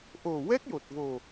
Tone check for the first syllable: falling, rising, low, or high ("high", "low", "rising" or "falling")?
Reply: low